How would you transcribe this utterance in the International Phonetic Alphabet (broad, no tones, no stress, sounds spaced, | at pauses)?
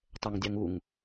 tˤ ɛ ŋ dʲ ɑ ŋ u ŋ